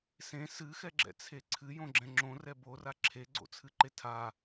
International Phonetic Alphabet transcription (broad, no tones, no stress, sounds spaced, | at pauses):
s ẽ s ɨ x ɛ ɡ͡ǁ ɛ̰ t͡sʰ e ǀʰ ɨ j õ ɡ͡ǁ ɛ̃ ŋ͡ǁ õ r ɛ b o r a ǁʰ e ɡ͡ǀ o̰ t͡sʰ ɨ ǃ e tʰ a